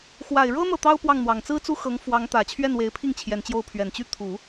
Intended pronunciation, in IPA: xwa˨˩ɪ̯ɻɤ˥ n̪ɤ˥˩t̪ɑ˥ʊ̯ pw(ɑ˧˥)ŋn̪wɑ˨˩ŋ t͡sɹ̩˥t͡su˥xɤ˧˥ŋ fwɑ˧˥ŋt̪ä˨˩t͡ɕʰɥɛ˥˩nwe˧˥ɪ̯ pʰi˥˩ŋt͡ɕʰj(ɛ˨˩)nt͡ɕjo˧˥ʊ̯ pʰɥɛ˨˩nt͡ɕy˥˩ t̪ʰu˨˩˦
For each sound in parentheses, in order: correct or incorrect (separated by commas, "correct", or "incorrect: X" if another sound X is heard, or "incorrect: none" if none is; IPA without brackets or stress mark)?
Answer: incorrect: ɑ˥˩, correct